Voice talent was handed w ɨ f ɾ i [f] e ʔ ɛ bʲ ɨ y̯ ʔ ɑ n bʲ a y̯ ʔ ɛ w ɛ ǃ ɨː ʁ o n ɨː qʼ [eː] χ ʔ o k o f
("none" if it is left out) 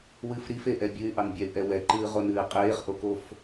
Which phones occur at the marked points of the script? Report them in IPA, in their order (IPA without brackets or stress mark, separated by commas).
f, eː